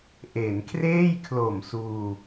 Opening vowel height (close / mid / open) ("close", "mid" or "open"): mid